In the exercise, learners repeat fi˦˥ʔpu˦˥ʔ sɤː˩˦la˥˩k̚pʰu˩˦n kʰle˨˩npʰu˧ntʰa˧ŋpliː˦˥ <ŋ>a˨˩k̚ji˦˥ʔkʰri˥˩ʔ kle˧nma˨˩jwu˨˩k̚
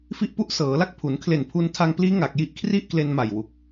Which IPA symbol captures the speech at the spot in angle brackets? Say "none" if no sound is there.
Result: ŋ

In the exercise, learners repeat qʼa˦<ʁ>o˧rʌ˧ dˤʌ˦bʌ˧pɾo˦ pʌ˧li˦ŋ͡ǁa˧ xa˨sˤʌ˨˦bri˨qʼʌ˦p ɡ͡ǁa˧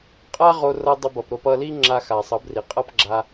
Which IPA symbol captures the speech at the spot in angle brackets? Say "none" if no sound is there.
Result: ʁ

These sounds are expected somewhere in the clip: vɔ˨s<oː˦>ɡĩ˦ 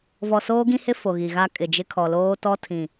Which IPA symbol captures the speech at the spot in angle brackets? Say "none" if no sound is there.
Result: oː˦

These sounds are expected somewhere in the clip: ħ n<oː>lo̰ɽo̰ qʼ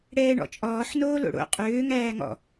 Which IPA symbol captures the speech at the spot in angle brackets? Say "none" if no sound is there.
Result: oː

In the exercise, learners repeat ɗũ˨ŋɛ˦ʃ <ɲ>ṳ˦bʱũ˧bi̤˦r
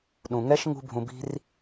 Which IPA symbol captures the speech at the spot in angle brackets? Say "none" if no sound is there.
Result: ŋ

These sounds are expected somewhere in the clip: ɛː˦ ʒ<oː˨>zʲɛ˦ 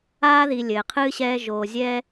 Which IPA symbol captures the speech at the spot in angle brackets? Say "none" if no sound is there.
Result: oː˨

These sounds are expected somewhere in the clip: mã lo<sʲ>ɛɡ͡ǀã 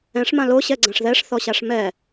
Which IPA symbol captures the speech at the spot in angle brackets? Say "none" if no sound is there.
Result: ɕ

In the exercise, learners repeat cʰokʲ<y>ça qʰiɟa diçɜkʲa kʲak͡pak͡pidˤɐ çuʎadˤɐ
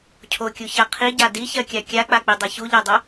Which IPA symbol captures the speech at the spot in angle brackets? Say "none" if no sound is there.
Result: u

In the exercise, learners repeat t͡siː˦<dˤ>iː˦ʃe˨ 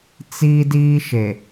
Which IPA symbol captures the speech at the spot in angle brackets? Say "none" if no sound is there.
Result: d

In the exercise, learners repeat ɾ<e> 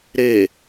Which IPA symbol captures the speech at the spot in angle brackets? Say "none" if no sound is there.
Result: e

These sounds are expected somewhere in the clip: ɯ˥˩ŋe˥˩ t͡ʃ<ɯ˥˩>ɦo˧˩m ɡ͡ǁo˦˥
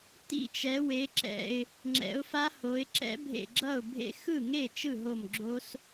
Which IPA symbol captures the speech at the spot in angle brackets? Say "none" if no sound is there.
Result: ɯ˥˩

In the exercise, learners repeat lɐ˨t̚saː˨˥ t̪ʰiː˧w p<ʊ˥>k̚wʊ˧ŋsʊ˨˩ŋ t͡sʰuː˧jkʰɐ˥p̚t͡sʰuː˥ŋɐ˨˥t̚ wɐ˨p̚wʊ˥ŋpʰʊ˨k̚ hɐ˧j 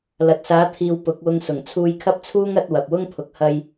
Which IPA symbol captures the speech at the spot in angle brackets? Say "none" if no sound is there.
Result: ʊ˨˥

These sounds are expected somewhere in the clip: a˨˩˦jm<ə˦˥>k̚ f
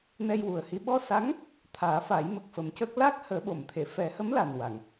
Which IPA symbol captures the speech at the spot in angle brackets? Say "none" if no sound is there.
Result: ə˨˩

